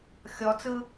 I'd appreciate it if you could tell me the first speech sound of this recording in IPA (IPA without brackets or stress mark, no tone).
xʲ